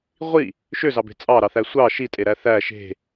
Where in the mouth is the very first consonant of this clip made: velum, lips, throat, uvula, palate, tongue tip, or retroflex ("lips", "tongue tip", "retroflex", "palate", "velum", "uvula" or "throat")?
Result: uvula